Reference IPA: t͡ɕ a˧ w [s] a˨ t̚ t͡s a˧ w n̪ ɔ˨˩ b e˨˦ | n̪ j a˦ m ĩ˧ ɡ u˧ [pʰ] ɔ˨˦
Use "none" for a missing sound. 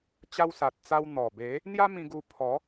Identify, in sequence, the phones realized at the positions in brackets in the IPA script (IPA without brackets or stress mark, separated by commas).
s, pʰ